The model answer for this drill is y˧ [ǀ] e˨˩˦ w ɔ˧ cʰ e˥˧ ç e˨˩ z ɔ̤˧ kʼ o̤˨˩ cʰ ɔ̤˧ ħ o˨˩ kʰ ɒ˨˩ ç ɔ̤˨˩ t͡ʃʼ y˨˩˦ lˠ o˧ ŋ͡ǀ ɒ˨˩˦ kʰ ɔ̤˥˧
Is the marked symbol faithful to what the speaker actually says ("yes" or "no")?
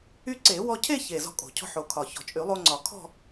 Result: yes